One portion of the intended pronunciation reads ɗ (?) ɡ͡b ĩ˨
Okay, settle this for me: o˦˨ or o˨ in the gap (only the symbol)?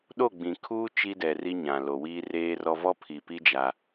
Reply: o˦˨